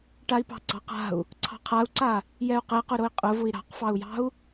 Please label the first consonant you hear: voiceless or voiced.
voiceless